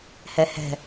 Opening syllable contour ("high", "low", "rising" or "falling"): low